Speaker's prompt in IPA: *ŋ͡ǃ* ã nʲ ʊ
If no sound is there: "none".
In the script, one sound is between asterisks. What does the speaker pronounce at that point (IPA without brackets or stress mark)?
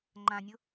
ŋ͡ǃ